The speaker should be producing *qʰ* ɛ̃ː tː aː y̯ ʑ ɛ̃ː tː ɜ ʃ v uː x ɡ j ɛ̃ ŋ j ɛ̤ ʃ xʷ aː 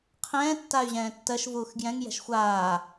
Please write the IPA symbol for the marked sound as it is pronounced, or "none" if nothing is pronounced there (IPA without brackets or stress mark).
qʰ